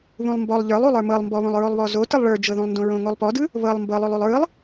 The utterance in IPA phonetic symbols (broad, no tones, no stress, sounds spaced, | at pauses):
β ũ lˠ m b ɔ lˠ ʎ ə˞ lˠ u lˠ ə˞ m ɤ lˠ m b ɔ β õ lˠ ɹ o lˠ β ɔ z o t ɯ lˠ ɭ ə˞ d͡ʒ ɤ ð ũ lˠ n d õ ɹ õ ŋ o lˠ p ɔ d ɯ | β ɤ lˠ m b ɤ lˠ o lˠ u lˠ ɹ ɯ lˠ